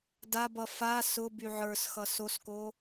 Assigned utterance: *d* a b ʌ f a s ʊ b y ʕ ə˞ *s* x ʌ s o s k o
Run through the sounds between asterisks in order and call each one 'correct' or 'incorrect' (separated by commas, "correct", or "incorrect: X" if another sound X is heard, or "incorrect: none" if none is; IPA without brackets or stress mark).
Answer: correct, correct